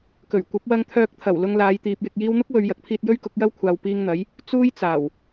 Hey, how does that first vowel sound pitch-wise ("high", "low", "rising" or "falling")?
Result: low